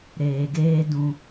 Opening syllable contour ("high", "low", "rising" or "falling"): low